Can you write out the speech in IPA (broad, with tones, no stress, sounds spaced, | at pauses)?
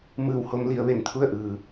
m ɯː˧˩ w h o˧ m l i˩˧ ə̯ ʋ e˩ n t̪ʰ u˥˨ ə̯ ʔ ɯː˩